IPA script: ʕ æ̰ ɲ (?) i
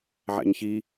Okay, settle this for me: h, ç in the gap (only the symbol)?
ç